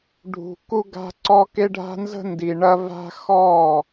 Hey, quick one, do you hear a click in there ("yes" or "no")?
yes